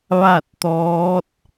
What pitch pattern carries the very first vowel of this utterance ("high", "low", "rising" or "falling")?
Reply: falling